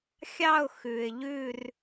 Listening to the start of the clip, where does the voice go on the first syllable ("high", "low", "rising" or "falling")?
falling